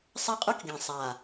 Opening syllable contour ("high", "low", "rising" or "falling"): falling